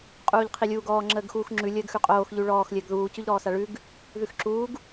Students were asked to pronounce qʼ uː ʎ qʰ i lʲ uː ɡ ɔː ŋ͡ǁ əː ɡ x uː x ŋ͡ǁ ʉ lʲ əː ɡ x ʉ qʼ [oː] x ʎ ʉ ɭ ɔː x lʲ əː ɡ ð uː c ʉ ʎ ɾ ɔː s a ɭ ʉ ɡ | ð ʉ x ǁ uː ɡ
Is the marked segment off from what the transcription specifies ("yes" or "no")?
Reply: no